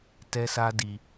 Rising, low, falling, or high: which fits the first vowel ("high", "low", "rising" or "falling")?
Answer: high